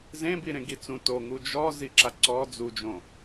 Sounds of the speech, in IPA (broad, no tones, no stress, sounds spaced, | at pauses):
z ẽ b i ɾ ẽ ɡ i t͡s ũ t o ŋ u d͡ʒ ɔ z i ǁ a ǀ ɔ d͡z u d͡ʒ õ